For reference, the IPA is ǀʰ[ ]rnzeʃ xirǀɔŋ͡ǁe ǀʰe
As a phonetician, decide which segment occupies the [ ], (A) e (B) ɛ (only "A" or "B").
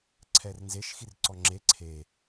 B